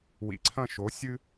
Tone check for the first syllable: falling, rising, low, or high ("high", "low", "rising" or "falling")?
low